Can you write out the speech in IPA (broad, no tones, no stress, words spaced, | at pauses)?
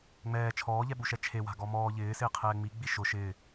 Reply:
ŋ͡mɛː t͡ʃʰɔːʎɛɓuʃɛ t͡ʃʰewa̤ ɡɔmɔː ʎɪːsɪː qʰɛːŋ͡mi ɡ͡biʃʊ ʃɪː